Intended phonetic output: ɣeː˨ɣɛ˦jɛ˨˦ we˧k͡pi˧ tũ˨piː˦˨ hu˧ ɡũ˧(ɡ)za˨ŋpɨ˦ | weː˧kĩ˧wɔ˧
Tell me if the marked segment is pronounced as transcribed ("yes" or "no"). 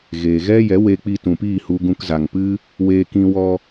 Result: no